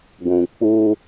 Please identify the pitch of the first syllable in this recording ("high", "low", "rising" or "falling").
low